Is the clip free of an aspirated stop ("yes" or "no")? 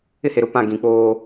yes